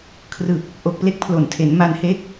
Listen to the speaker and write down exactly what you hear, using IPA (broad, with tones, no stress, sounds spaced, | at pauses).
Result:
kʰ r ɯ˨˩ k̚ | ʔ o˨˩ k̚ p l e˦˥ k̚ pʰ l o˩˦ n tʰ e˩˦ n m a˧ n h e˦˥ k̚